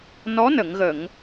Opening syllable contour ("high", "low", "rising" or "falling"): rising